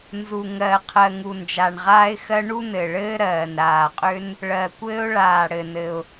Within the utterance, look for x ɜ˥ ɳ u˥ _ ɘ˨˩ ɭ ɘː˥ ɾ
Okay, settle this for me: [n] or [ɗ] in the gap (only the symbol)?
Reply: n